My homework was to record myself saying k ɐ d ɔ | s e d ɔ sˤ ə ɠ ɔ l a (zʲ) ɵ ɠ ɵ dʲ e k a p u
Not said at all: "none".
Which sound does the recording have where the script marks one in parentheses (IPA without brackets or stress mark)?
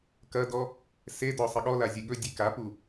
zʲ